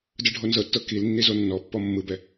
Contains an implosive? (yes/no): no